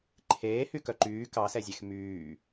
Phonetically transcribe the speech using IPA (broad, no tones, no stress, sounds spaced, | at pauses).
ǃʰ eː h y k œ ǃ yː k ɑ s ɛ zʲ ɛ x m yː